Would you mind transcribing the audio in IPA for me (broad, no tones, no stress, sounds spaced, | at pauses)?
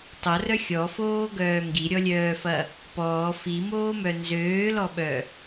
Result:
tˤ o r œ xʲ ɔ f oː ɡ œː ŋ ɡ i ɾʲ ɔ lʲ œː f ɐ | p ɔː f i m oː m œ n z øː l ɔ ɓ œ